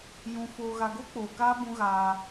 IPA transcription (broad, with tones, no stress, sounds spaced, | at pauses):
j ũ˨ f oː˨ ɣ a˨ ɡ o˦ k͡p oː˨ k aː˦ b ũ˦ ɣ aː˦